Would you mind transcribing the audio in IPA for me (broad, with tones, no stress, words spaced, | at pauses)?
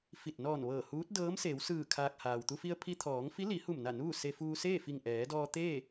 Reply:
fi˧˩t̚ nɔː˧˩n ʋɤː˧˩huː˧˥t̚dɤː˧˥m seː˩˧wsɯː˧˩ kʰaː˧k̚ haː˩wt̪u˧fi˧ə̯ pʰi˧t̪ʰɔː˩˧ŋfi˧˥ li˩˧hu˧˩mna˧˩ nuː˥˨ se˧fuː˧ seː˥˨fi˧˩ŋʔɛː˩˧dɔː˧ t̪eː˥˨